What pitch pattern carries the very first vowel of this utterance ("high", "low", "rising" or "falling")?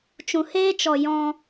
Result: low